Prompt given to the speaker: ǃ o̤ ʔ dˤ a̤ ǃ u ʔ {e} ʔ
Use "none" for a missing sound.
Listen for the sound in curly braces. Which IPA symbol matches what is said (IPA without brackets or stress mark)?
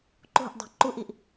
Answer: i